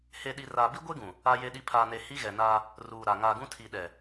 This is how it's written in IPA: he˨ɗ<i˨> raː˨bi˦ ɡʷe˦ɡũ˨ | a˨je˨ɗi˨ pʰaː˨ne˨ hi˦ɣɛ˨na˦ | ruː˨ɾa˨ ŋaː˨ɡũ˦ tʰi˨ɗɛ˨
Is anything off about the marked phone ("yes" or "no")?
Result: no